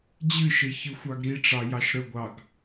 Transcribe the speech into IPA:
d͡ʑɨʃe çɨxʷɑɡɾiʈ͡ʂɑ jɑʃɾəɡʷɑɡ

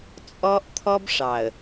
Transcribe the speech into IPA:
t͡sʼɔ˦ʔt̪ʰɔ˦bʂɑ˨ə̯

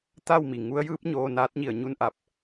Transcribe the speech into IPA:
t̪a˥˨wmi˩ ŋu˧˥ə̯jɯː˧˥p̚ɲoː˧ naː˧˥t̚ɲi˧˩ə̯ɲu˥˨n ʔa˧˩p̚

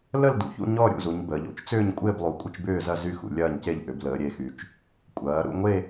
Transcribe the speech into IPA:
lə˥˧ldṵ˩˧çṵ˥˧ ɲɔ˥˧ ɾʲṵ˥˧zu˩˧ɲ bəː˩˧ʎo̰˩˧t͡ʃ t͡sʏː˥˧ɲkʷʼɪː˥˧blˠu˩˧ kʷʼɪ˥˧t͡ʃbʏː˥˧zɐ˥˧ zy˥˧ xṵ˩˧lʲɐː˥˧ɲce˥˧ʎ ʔʏ˩˧b ləː˩˧ɾʲe˩˧xy˩˧t͡ʃ | kʷʼɐː˩˧ ɾṵ˥˧ŋʷe˥˧

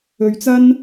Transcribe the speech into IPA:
ɵ˧ɥt͡sɐ˥n

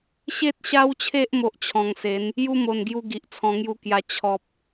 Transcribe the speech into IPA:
ɕe˦t̚ɕa˦wt͡ɕʰe˦ʔ mo˦ʔt͡ɕʰɔ̃˧ŋse˨˦n | ju˦mo˨˩nɡju˧ ɡi˨ʔt͡sʰɔ̃˧ŋju˦kja˧ t͡ɕʰɔ˨p̚

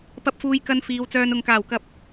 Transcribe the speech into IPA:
pɐ˧p̚fuː˨˧jkɐ˧n fiː˨˧wt͡sœː˧n ʊ˨ŋkaː˨˩wkɐ˨p̚

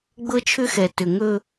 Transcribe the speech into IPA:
ɡ͡bɤ˦t͡ʃʰʏ˦xɛ˨ tʏ˨ŋɵ˦

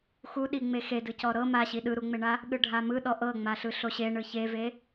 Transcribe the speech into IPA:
xuɗi ŋ͡mexedɯ cɔɾɤ maɕi ɗɯɾuŋ͡meɳa | ɠɯɖʱamɯ ɗɔʔɤ ŋ͡maɬɯɬoɕe ɳɯçeve

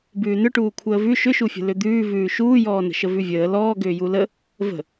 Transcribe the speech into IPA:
bʉːnʏʈuː kʷʰəːvʉ ʃʏʃufʲə̤ lʏd̪ʉːvʉː ʃuːjɔːnə̤ ʃəvʉvʲəː lɔː ɡʏːjulə | və̤

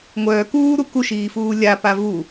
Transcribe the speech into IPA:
ŋʷœː kuːɾu kuʃiːfuː lʲapa vu

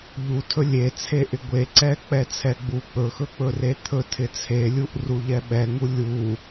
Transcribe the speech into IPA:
ʎutʰɵ lʲet͡sʰe ʔɪɡʷeǀɛ k͡pɛt͡sʰɛɡ͡bu k͡pɵxɵk͡pɵre t̪ʰɵ tʰɪt͡sʰelʲuʔ ruʎɛɓɛŋu lʲu

